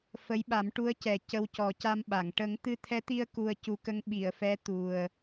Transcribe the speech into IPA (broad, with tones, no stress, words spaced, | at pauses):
fə˧˥jɓa˨˩˦m ʈu˧˥ə̯cɛ˨˩ cə˧wcɔ˨˩˦ ca˧mɓa˨˩˨ŋ ʈə˨˩˦ŋt̪ɨ˧t̪ʰɛ˧˥t̪i˧ə̯ ku˧ə̯ cu˨˩˦kə˧˥ŋ ɓi˨˩˨ə̯fɛ˧˥ t̪u˨˩ə̯